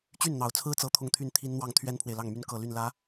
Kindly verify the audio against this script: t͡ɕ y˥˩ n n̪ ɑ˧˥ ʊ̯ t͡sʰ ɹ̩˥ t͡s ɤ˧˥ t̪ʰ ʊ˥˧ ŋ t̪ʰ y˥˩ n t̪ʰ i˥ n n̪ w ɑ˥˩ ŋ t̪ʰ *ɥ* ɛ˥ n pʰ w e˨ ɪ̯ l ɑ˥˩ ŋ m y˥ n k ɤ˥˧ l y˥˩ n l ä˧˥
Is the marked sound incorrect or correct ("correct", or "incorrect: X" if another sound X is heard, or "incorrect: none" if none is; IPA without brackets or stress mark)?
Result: correct